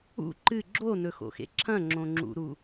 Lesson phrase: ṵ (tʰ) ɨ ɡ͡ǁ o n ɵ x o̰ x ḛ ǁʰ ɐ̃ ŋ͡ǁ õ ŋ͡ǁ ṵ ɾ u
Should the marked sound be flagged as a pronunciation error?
yes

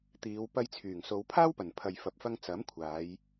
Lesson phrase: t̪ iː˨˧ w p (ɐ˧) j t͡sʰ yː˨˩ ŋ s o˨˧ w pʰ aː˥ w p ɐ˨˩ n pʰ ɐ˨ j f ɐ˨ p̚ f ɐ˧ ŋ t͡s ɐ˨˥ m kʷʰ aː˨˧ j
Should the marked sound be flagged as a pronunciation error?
no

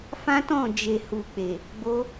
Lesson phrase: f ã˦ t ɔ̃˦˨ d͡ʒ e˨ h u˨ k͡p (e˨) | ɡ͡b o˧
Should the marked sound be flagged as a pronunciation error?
no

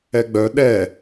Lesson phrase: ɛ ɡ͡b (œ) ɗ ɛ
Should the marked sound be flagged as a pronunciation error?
no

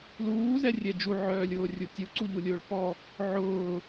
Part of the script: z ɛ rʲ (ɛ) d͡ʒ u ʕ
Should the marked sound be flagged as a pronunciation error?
no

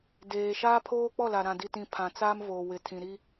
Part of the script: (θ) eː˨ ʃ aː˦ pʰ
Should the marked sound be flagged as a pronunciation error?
yes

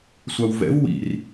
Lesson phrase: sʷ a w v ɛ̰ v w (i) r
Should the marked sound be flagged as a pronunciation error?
yes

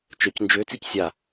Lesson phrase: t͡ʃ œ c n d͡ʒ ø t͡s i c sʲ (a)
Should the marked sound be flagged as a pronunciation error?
no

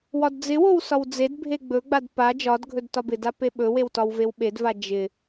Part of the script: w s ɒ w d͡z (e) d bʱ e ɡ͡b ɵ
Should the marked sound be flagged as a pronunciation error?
no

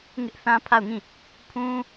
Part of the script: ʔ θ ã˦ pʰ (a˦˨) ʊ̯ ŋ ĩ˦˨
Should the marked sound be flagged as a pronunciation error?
no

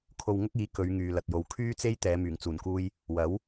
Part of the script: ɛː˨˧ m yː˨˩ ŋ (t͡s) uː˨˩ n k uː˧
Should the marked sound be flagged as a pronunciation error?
no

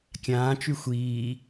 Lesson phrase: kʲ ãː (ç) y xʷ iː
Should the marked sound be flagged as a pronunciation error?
yes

